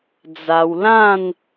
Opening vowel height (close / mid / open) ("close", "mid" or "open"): open